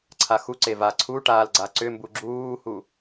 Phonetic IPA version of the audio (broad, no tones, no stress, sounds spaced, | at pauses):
ǀʰ a x u ǀ e v a ǀʰ u ʈ aː l ɡ͡ǀ a ǀ ʏ m b u ɡ͡ǁ uː h u